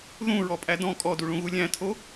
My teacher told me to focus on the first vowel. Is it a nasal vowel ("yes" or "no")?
yes